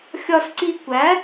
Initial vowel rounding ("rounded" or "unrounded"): rounded